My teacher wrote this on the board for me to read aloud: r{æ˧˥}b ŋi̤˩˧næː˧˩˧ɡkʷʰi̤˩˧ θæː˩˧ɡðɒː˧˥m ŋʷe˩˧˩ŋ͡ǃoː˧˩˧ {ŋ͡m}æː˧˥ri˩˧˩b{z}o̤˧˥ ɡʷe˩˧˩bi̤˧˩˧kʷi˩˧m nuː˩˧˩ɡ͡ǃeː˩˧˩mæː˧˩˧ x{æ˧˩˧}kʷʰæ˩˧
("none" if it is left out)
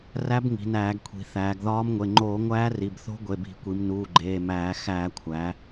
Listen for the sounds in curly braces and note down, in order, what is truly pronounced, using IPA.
æ˧˥, ŋʷ, θ, æː˧˩˧

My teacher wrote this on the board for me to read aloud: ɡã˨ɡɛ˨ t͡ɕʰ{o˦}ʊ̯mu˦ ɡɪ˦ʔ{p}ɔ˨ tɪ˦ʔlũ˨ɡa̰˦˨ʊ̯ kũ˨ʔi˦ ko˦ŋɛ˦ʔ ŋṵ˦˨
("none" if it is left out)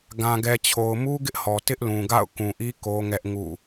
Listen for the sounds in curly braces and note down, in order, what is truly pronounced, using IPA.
o˨, h

